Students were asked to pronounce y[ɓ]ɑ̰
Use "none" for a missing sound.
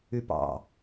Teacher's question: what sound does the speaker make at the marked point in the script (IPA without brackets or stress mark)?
p